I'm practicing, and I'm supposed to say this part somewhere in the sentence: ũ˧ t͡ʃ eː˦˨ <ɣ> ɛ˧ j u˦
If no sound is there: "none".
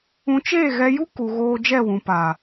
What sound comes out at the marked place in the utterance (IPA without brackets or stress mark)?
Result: ɣ